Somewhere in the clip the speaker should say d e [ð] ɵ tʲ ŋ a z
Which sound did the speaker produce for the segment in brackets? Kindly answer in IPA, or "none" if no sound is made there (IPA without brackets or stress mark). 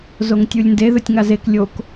ð